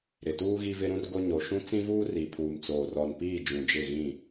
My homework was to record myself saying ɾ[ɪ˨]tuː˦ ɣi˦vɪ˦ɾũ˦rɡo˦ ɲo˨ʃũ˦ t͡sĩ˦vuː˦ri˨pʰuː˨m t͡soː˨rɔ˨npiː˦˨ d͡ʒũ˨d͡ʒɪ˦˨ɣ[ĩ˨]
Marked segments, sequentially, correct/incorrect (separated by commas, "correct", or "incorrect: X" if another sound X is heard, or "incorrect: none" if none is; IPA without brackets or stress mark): correct, incorrect: ĩ˦˨